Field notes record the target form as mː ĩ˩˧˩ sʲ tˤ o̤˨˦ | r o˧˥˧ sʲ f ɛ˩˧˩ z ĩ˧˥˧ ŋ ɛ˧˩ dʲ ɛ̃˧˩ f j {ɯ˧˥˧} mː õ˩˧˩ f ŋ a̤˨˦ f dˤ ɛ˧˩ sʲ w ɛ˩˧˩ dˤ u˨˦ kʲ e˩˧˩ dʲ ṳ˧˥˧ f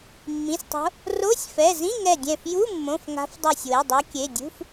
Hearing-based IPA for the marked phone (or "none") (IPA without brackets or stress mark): u˧˥˧